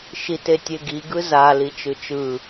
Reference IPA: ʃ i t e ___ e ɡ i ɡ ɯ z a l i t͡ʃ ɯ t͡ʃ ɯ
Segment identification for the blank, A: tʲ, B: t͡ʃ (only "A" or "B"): A